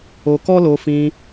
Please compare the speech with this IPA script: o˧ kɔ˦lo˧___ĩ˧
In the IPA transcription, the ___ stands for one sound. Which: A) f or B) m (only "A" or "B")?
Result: A